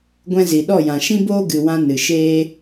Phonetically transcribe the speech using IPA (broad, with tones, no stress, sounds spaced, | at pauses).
ɡʷ ɛ̃˧ z i˨ ɗ ɔ˦˨ j ã˨ ʃ ĩ˦ b oː˦ ɡ ɨ˨ w ã˧ n ɨ˨ ʃ eː˦